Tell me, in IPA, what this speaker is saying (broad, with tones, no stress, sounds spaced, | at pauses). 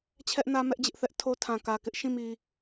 t͡ɕʰ ɛ˦ ʔ n ä˦ m ɛ˦ ʔ d͡ʑ ɪ˦ ʔ θ ɛ˦ ʔ tʰ o˦ tʰ ã˨ k ä˨ k ɪ˦ ʔ ʃ ĩ˦˨ m i˨